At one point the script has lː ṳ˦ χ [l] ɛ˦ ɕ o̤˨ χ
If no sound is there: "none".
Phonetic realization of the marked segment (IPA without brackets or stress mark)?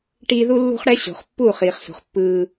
ɽ